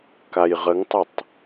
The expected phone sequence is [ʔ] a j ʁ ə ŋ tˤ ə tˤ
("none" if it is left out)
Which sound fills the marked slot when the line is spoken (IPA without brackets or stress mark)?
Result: k